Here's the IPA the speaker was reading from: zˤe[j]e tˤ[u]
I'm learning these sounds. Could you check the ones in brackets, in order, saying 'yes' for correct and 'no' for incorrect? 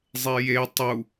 yes, yes

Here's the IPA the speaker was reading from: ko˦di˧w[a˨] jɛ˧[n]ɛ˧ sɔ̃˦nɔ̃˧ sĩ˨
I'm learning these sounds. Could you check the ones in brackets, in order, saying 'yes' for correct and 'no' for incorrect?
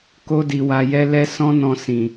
no, no

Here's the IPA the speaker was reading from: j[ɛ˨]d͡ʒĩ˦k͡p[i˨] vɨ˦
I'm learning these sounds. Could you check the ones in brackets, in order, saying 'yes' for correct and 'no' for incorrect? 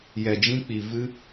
yes, yes

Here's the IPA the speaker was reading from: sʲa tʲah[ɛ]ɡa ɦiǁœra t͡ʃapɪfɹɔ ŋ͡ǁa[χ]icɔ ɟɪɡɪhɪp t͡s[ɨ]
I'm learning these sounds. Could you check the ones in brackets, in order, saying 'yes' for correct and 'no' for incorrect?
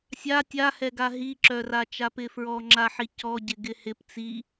yes, no, no

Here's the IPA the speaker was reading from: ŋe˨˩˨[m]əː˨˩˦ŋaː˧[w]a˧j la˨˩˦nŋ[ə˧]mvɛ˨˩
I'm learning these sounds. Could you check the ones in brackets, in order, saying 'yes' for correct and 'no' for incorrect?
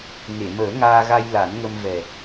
yes, no, yes

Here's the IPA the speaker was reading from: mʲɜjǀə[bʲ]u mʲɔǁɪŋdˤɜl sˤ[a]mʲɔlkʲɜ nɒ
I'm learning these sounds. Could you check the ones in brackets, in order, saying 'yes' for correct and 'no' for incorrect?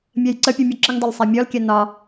no, no

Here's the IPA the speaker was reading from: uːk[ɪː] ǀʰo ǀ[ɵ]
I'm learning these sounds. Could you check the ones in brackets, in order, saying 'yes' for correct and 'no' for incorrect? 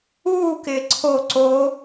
yes, no

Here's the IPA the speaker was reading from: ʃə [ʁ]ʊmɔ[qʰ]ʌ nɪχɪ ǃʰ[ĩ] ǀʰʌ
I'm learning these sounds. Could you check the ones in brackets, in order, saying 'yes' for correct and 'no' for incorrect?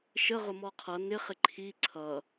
yes, yes, no

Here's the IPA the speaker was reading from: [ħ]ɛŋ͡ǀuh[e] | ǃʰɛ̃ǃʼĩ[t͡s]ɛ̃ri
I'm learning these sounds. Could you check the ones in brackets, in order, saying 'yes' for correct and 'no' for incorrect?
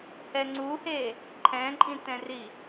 no, yes, no

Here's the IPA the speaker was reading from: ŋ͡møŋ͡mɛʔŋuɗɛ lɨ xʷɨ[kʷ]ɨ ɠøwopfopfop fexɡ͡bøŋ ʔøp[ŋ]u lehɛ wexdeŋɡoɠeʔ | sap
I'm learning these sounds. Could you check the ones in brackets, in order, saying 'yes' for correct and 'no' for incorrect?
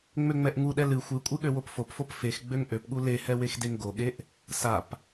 no, no

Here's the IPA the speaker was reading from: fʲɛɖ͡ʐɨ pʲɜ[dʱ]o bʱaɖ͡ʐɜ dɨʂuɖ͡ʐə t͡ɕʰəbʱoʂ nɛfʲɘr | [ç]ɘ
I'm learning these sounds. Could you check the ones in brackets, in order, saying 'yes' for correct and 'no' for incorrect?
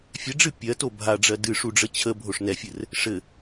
no, no

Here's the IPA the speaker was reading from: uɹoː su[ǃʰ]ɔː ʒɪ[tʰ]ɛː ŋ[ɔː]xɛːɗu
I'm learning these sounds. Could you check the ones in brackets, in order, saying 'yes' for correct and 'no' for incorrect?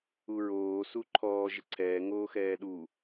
yes, no, no

